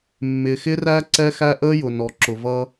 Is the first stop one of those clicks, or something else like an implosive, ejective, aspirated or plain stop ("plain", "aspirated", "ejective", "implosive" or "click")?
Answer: click